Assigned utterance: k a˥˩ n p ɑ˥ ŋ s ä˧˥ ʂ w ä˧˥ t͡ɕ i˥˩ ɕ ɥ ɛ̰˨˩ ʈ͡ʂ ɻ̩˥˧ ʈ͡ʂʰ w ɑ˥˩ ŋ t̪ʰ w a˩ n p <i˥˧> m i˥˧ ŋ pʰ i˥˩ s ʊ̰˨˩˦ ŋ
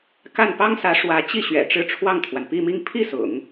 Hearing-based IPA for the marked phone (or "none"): i˥˧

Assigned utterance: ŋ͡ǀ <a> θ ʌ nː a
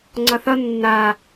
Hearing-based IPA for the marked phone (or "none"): ʌ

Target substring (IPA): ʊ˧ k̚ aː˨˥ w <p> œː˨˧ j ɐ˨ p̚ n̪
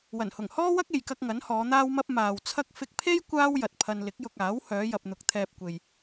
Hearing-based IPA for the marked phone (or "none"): h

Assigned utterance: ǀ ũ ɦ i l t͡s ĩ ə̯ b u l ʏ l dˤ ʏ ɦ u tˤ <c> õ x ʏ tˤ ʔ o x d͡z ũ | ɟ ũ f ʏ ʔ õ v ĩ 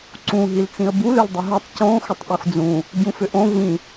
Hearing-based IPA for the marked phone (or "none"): c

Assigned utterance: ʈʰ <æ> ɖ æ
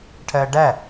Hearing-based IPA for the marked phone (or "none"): ɜ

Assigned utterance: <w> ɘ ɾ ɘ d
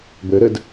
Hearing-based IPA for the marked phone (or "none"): b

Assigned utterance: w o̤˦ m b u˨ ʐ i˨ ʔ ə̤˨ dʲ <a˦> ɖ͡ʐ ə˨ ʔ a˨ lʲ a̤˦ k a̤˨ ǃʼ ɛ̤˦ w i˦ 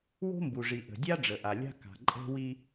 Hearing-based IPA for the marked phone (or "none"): a˦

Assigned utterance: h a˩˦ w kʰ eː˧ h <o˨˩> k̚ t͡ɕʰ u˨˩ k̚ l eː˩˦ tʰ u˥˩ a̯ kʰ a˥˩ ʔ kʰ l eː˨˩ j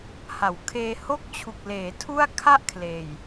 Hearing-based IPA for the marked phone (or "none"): o˥˩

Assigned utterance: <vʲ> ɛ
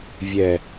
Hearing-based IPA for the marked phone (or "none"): vʲ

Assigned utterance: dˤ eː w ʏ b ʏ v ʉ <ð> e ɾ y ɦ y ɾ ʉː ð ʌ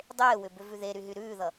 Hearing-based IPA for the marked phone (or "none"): ð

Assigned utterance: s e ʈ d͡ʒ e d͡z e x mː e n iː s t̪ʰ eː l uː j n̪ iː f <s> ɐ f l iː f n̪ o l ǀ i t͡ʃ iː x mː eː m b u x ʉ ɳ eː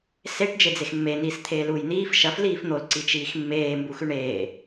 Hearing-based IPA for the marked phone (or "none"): ʃ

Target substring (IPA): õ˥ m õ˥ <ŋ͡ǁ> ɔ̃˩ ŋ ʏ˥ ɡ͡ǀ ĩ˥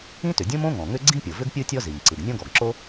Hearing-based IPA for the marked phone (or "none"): ŋ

